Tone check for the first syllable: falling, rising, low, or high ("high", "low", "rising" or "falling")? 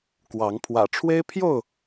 rising